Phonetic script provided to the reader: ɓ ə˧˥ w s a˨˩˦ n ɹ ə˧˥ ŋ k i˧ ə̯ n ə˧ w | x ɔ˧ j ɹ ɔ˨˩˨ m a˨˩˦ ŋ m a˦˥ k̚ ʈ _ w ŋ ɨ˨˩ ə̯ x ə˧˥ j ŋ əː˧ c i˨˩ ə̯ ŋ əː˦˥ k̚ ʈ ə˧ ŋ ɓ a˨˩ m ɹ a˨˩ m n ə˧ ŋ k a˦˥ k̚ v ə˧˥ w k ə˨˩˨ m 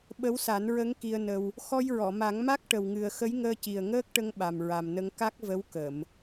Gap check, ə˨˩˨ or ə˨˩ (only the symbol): ə˨˩